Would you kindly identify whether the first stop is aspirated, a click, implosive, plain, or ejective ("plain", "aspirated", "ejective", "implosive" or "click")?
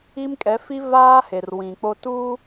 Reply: ejective